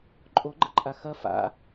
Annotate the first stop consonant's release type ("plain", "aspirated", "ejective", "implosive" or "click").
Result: click